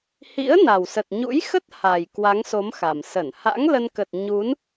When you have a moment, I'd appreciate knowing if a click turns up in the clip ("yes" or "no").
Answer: no